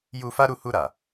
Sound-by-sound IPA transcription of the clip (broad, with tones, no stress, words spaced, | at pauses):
ju˧fa˦ɾu˦˨ hu˧ɾa˨